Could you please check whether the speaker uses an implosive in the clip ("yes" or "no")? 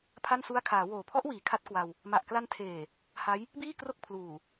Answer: no